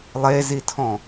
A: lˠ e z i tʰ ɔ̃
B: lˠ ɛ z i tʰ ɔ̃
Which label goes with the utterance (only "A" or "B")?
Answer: A